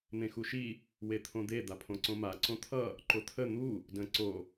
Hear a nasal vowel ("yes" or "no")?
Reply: yes